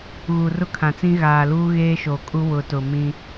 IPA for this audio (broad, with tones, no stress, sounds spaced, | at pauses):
ɣ u˨ r ʊ˦ kʰ ã˨ t͡s ĩ˦ ɣ aː˨ l uː˦ ɣ eː˦ ʃ oː˨ kʼ u˦ w ʊ˨ t ʊ˨ m ĩ˦